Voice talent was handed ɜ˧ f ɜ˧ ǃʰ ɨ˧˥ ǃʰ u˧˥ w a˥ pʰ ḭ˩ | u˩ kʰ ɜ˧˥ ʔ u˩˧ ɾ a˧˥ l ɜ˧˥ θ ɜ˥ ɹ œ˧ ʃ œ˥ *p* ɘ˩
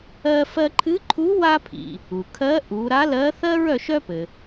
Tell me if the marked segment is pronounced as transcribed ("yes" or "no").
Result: yes